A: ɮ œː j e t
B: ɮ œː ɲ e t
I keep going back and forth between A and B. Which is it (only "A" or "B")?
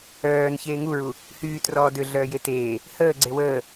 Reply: A